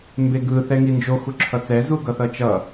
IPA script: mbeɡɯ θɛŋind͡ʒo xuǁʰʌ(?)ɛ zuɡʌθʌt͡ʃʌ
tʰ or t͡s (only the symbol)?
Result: t͡s